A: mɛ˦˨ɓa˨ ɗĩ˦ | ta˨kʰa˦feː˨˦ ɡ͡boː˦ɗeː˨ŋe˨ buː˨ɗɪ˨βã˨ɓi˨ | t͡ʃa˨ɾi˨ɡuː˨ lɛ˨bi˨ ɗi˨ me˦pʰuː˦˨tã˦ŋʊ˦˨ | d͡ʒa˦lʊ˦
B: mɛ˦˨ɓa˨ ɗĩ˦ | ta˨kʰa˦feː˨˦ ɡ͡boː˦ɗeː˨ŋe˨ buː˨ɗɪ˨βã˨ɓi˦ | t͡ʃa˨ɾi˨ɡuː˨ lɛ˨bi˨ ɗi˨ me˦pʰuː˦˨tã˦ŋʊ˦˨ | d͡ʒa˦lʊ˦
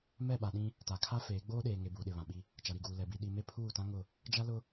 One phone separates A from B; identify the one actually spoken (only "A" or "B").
B